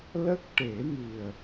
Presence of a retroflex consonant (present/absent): present